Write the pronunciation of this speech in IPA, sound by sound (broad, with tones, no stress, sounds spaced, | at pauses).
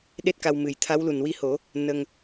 ɗ e˦˥ t̚ k a˧ w m ɨ˨˩ j t̪ʰ a˧˥ w l u˨˩ n w i˧ h o˨˩˦ | n ə˧ ŋ